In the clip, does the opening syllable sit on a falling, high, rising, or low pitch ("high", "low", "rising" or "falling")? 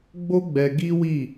high